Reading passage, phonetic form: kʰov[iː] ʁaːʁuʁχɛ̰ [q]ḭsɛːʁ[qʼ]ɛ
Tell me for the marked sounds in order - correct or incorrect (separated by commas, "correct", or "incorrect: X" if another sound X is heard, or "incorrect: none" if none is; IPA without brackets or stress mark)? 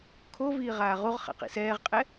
correct, correct, correct